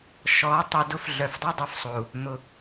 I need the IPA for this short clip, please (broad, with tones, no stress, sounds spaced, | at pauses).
ʃ ɔ˨˦ tˤ ʊ˨ d ʊ˦ f ɮ œ˨ f dˤ ɛ˦ dˤ œ˨ f sˤ o˨ u̯ | n̪ ʊ˨